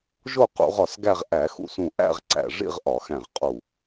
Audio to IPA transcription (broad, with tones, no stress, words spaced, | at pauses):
ʒo˥˧qṵ˧˩˧ʁ ɒ˧˩sɡæ˥˧ʁ ʔæ˧˩˧xṵ˧˩sũ˧˩ ʔæ̰˥˧ʁǀæ̰˧˩ ʐḭ˥˧ʁʔɒ˧˩˧xæ̃˧˩ʁqʼu˧˩